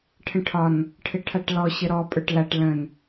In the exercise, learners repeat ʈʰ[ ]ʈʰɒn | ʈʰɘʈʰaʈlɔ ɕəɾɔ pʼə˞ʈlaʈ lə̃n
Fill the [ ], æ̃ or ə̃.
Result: ə̃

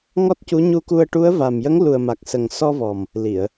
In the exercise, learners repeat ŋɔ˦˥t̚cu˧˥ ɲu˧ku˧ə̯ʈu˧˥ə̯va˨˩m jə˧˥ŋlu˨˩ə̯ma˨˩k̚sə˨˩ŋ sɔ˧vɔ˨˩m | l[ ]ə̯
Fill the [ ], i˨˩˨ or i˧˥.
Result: i˨˩˨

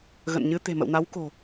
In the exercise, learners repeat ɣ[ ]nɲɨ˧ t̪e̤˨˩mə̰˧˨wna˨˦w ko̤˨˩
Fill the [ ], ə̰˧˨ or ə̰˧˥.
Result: ə̰˧˨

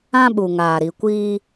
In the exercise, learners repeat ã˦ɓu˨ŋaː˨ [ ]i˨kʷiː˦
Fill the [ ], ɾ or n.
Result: ɾ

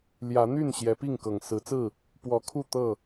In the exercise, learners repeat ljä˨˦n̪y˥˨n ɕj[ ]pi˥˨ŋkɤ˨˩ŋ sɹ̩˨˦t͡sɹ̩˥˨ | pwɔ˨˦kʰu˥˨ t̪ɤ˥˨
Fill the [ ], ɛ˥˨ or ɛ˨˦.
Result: ɛ˨˦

